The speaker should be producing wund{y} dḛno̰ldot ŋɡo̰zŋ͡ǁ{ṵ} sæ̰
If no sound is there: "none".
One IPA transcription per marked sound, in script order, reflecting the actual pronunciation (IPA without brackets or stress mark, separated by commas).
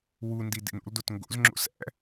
i, o̰